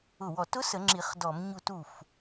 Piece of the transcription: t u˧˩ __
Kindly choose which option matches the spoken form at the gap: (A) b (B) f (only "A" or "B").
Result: B